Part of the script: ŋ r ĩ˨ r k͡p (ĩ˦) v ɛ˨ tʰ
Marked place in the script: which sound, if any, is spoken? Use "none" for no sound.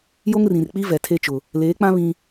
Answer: i˦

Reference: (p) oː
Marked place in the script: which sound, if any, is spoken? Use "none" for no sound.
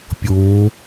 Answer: pʲ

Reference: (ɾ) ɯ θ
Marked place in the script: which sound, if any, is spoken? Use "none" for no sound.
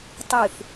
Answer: tˤ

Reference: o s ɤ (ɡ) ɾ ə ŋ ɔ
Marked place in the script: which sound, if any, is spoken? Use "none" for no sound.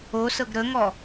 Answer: ɡ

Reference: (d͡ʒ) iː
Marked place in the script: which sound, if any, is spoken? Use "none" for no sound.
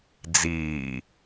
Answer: d͡z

